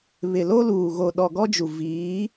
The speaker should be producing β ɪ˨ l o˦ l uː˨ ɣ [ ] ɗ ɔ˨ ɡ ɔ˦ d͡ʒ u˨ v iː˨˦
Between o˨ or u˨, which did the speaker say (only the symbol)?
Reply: o˨